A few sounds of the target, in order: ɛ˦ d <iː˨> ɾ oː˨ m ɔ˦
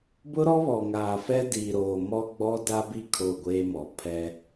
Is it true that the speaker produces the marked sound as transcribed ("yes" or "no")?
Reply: yes